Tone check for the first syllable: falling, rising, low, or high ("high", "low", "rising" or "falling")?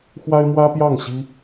high